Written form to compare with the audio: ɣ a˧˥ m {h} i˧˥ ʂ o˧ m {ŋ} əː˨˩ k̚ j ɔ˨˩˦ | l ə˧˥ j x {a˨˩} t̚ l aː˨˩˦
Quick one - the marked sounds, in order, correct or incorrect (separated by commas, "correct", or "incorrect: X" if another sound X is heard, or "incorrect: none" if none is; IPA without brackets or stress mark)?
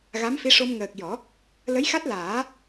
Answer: incorrect: f, correct, incorrect: a˦˥